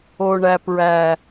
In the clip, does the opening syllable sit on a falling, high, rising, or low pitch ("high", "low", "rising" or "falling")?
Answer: low